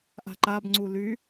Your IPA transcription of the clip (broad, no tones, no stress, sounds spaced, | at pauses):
ʔ a̤ ǃ a b ŋ͡ǀ u l y